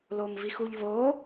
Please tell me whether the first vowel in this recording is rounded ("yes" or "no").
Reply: yes